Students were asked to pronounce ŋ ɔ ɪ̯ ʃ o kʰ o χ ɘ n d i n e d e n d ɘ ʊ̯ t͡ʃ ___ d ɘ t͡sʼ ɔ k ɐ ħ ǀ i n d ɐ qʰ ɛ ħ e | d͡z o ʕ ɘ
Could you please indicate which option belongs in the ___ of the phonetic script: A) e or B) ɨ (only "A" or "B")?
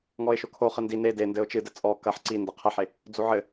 B